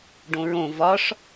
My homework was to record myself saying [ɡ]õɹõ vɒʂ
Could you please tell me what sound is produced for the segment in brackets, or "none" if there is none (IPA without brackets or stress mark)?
ɖ